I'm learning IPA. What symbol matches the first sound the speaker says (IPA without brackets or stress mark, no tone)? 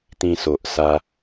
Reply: t̪